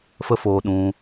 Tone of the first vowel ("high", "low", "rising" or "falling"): high